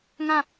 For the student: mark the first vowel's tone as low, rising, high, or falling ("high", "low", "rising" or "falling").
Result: falling